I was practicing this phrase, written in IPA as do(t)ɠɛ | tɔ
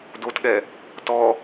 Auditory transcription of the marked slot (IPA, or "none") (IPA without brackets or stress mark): t